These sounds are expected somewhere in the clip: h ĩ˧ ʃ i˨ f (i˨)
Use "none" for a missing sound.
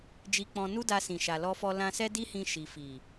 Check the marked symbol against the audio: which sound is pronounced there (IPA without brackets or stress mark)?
i˨